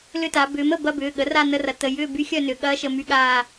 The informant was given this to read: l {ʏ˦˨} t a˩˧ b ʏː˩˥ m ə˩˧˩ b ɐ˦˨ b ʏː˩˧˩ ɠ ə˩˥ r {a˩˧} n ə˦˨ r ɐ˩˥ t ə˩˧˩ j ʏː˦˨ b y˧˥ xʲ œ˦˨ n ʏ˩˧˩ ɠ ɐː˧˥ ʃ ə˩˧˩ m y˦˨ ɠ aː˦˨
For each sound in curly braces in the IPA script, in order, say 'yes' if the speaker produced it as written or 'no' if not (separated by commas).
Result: yes, no